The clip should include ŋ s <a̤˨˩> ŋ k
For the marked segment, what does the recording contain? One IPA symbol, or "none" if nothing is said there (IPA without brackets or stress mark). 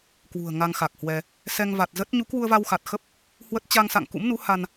a̰˧˨